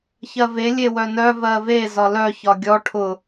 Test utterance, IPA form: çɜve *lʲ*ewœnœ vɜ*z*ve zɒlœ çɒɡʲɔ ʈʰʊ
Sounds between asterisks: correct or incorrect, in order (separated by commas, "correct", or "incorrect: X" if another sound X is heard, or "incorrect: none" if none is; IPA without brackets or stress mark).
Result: correct, incorrect: none